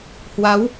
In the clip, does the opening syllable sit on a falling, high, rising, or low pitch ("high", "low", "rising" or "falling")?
rising